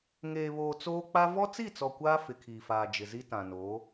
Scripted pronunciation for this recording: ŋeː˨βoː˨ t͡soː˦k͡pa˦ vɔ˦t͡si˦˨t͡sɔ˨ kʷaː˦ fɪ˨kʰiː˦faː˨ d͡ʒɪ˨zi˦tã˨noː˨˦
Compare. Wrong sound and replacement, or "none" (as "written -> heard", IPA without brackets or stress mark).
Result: iː˦ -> iː˨